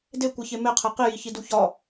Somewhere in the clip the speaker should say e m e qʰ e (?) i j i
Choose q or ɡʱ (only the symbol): q